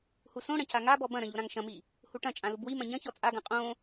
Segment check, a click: absent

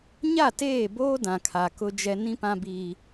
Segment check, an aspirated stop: present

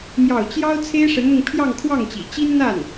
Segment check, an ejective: absent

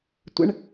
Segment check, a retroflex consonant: present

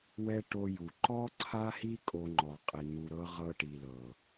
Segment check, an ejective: present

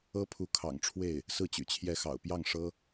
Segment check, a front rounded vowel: present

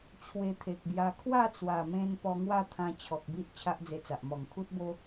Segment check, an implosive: absent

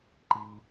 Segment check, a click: present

